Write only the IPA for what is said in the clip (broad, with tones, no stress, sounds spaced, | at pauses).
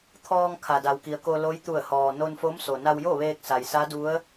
t̪ʰ ɔː˧ ŋ kʰ a˩ d a˩ w k i˩ ə̯ k o˧ l o˧˥ j t̪ u˧˩ ə̯ h ɔː˩ n o˧ n f o˧˥ m s o˩ n a˧ w j o˥˨ ʋ eː˧ k̚ s a˩ j s a˧˥ d u˧˥ ə̯